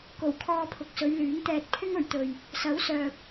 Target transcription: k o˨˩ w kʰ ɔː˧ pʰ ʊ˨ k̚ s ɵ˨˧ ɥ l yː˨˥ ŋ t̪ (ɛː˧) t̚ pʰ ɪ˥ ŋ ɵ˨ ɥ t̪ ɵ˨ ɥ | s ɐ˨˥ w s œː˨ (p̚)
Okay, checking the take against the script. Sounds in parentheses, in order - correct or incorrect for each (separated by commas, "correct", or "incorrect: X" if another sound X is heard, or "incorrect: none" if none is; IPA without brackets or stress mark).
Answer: correct, correct